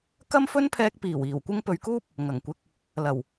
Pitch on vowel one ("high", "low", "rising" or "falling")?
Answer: high